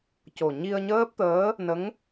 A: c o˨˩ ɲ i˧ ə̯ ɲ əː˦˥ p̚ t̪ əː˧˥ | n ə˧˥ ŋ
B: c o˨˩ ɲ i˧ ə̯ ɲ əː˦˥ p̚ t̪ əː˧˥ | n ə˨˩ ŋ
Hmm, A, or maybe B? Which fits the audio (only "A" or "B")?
A